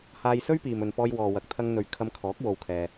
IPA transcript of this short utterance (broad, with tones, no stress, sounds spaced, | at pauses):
h aː˧ j s ɵ˥ ɥ p iː˨ m ɵ˨ n p ɔː˧ j w ɔː˨ w ɐ˨ k̚ t̪ʰ ɐ˧ ŋ n̪ ɵ˨ ɥ kʰ ɐ˧ m kʰ ɔː˨˥ k̚ w o˨ w kʰ ɛː˨